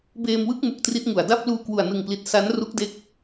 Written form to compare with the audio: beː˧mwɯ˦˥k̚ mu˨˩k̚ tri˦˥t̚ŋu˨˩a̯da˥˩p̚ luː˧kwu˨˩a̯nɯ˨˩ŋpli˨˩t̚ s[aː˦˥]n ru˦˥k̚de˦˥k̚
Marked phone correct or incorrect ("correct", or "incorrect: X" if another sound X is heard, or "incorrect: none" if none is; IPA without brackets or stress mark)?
incorrect: a˦˥